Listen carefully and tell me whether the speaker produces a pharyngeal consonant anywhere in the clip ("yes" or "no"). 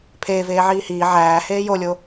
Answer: yes